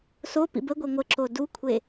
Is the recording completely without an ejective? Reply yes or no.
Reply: yes